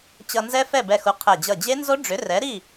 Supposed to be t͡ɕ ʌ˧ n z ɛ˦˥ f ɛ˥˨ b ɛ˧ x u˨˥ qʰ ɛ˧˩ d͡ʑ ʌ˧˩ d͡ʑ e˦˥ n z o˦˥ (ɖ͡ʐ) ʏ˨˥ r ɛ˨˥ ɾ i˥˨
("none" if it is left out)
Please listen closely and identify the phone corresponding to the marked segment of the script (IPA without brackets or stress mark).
ɖ͡ʐ